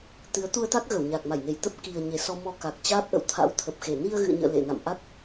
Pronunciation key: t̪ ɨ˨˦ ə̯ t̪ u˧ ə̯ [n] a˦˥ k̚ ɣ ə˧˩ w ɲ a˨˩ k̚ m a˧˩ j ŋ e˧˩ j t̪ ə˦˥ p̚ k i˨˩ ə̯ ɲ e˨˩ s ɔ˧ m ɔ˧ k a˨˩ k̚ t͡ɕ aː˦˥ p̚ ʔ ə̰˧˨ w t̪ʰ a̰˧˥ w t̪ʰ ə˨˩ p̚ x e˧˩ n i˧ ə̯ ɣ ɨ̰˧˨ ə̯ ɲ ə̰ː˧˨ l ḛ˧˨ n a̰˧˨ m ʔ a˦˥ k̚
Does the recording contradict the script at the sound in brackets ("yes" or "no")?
yes